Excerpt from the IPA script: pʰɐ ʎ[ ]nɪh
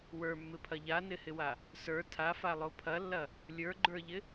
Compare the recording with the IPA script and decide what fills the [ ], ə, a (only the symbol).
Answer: a